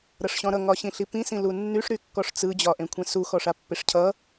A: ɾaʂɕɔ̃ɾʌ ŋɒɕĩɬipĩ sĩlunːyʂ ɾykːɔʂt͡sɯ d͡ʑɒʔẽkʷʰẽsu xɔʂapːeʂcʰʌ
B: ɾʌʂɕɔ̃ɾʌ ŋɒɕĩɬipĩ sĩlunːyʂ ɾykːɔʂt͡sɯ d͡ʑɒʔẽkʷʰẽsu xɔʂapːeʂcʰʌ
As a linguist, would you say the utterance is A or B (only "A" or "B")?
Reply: B